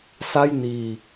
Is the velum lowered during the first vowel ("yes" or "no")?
no